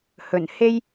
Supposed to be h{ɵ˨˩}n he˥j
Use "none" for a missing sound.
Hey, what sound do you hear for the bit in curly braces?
ɵ˨˩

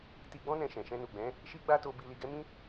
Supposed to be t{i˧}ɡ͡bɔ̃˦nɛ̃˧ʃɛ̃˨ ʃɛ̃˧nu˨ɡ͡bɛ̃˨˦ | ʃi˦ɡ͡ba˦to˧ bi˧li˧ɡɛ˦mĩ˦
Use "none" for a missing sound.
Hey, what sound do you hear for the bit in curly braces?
i˧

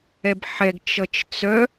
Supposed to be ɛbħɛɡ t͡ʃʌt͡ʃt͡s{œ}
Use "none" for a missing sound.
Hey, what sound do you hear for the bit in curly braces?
œ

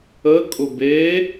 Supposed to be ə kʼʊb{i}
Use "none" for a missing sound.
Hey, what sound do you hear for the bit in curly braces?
e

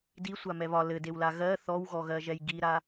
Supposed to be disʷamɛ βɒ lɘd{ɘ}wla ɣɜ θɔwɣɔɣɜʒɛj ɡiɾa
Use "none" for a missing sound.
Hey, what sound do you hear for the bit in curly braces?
e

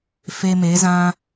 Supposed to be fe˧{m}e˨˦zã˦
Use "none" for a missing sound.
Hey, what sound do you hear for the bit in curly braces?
m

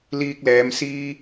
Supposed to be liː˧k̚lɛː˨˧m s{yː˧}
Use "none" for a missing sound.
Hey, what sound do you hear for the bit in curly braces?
iː˧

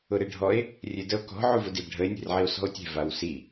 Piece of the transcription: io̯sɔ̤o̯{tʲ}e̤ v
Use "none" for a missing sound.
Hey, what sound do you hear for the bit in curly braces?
tʲ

